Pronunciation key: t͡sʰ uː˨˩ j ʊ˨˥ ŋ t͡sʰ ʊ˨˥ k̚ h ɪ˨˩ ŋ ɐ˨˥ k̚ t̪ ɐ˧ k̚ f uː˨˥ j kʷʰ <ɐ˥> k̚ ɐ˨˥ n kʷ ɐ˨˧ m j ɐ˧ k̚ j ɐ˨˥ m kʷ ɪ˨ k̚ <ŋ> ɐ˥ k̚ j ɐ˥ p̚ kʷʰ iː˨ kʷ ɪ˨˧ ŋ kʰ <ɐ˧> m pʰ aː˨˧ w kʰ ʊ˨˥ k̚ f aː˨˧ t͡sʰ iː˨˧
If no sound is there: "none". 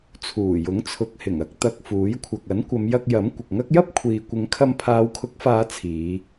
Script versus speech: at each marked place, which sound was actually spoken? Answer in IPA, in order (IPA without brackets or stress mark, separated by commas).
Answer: ɐ˨, ŋ, ɐ˧